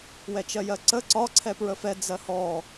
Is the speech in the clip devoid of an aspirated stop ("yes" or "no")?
no